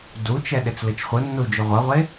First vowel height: high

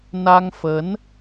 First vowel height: low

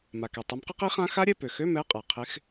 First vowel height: low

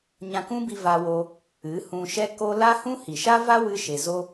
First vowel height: low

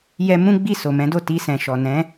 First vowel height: mid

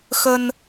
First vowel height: mid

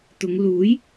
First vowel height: high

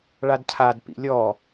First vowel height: low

